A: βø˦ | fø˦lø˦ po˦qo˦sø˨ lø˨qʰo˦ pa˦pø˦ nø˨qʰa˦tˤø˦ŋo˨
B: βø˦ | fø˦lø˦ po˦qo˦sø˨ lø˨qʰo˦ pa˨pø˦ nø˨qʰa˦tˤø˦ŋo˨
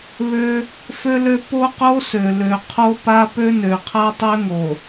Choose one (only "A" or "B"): A